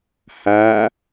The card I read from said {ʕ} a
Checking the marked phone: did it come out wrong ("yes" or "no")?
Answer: yes